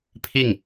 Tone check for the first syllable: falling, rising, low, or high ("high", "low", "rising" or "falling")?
falling